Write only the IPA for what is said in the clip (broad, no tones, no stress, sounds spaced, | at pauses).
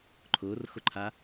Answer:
ǃʰ ʊː r x ʊ ǃʰ a